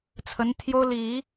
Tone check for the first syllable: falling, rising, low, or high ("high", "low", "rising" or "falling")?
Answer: rising